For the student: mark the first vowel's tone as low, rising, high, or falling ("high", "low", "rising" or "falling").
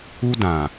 high